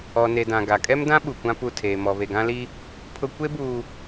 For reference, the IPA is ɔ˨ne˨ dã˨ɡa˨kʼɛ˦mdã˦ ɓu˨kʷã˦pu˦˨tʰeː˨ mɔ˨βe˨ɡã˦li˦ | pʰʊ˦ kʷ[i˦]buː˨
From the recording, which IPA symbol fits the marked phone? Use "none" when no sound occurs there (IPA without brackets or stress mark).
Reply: e˦